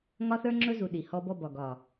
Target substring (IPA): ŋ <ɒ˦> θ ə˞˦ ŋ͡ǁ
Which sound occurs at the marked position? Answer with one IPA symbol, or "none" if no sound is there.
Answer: ɒ˦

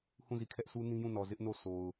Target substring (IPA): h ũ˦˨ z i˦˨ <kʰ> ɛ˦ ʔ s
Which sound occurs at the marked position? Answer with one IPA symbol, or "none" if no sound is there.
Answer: kʰ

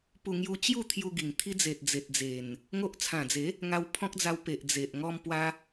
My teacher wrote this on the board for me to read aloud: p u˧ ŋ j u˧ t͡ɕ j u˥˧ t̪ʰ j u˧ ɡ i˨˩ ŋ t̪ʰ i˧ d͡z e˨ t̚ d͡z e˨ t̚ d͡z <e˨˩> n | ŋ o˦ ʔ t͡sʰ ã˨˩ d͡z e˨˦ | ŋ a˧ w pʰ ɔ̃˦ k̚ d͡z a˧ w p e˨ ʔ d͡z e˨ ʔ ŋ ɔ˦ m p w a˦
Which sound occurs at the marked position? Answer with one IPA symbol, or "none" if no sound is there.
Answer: e˨˩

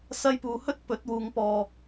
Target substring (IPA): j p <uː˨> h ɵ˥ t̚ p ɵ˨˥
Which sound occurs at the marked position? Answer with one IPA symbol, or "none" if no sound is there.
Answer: uː˧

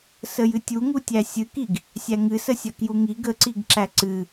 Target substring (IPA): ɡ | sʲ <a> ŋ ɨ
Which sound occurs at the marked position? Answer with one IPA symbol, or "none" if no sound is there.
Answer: æ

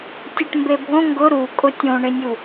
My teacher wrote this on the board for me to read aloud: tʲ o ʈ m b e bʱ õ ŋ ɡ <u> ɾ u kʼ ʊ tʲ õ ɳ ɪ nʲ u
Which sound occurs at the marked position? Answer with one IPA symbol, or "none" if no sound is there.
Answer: ʊ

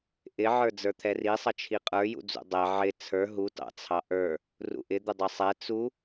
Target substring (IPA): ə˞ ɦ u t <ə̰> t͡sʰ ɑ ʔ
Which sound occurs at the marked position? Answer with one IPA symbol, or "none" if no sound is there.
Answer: ɑ̰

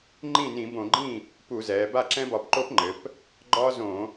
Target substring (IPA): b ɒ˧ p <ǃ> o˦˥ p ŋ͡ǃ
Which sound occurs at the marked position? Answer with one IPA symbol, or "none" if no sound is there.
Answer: ǃ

